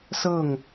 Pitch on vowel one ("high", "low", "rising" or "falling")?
falling